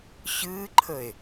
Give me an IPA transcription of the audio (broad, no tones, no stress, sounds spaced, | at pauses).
ɕ ɨː ǃʰ ə e̯